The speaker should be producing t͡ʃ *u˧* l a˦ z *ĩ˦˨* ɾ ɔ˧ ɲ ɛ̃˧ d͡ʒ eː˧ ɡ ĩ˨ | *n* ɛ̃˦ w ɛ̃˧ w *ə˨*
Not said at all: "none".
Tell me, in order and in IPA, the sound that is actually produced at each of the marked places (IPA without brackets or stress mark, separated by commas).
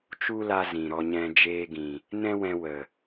u˦, ĩ˨, n, ə˨